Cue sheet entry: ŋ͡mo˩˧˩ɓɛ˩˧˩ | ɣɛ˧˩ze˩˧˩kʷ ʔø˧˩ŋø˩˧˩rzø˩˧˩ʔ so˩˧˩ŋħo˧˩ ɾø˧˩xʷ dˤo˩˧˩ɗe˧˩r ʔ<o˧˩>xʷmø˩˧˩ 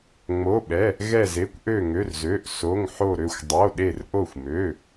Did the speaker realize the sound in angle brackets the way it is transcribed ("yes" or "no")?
yes